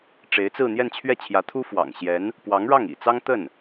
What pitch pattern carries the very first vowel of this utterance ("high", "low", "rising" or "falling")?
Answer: rising